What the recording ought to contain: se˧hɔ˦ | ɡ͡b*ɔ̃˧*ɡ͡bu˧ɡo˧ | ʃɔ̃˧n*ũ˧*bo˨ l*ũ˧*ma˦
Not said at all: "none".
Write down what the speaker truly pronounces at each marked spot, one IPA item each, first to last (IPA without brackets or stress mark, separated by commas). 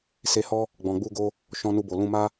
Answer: ɔ̃˨, u˧, ũ˧